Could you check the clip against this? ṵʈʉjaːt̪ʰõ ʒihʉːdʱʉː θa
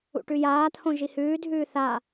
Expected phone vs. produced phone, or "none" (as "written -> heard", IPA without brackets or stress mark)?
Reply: none